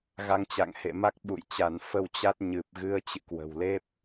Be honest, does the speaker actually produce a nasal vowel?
no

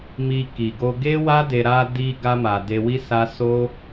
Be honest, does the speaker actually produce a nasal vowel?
no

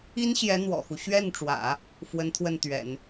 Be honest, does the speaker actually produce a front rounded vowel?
no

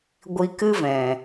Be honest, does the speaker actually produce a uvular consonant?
no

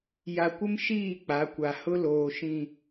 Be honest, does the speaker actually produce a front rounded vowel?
no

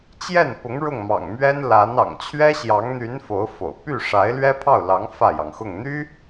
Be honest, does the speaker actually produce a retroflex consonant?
yes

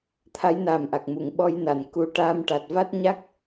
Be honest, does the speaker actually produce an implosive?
yes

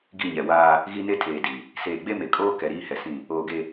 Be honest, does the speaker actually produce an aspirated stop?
yes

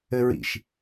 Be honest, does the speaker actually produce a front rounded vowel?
no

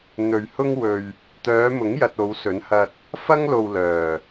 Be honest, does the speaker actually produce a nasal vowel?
no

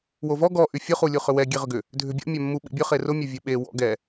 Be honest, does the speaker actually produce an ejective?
no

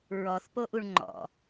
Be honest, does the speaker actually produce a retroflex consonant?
yes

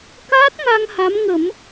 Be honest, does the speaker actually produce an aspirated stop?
no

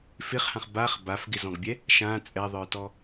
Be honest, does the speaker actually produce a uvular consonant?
yes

